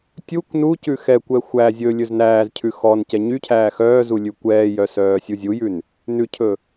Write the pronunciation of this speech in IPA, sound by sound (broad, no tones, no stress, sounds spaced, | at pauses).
tʲ u kʷ n u c ʉ x ɛ kʷ ɛ xʷ æ zʲ ɵ lʲ ɵ z n æː z cʰ ʉ x ɔ n c ɛ ɲ y cʰ æː x œː z u lʲ ʉ kʷ ɛː j œ s œː sʲ u zʲ u j ʉ n | n ʉ cʰ ɵ